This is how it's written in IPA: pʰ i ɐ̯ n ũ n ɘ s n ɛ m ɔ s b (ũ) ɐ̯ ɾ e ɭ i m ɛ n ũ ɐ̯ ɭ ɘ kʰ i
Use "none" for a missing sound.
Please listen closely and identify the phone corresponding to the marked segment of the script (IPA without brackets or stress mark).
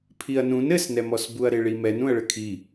u